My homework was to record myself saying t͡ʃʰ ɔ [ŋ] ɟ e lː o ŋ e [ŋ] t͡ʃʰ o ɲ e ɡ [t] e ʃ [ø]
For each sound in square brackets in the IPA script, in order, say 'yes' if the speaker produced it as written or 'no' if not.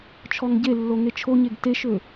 yes, no, yes, yes

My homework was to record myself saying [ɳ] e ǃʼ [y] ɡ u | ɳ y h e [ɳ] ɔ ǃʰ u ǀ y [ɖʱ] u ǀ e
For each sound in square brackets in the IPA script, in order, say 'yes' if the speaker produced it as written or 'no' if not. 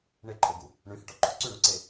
yes, no, no, no

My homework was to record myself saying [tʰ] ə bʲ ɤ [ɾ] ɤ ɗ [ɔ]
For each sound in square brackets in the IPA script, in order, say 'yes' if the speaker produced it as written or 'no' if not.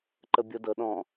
no, no, no

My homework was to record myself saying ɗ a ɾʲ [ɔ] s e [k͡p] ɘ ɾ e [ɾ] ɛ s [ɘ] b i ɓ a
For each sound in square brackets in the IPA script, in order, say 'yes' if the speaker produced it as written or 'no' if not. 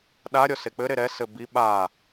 yes, yes, yes, yes

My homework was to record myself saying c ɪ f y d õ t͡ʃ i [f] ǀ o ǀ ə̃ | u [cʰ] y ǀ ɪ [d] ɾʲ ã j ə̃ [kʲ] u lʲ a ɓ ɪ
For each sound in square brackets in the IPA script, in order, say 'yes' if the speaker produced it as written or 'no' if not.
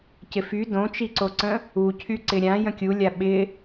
no, yes, no, yes

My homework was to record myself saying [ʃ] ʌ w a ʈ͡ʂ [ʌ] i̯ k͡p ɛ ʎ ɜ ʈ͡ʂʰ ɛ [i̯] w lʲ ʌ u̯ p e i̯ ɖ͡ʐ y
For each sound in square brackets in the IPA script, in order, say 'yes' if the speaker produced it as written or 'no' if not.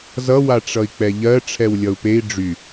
no, yes, no

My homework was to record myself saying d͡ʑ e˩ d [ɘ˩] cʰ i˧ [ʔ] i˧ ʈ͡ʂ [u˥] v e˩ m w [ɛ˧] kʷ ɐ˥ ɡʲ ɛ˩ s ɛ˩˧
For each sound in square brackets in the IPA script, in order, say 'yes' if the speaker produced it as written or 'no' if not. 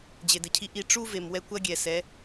yes, yes, yes, yes

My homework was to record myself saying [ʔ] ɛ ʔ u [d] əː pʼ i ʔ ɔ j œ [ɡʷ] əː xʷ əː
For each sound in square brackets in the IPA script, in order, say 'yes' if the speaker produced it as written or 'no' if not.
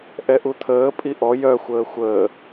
yes, no, no

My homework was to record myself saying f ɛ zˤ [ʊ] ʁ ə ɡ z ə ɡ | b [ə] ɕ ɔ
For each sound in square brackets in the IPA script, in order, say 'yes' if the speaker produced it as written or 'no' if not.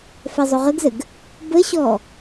yes, yes

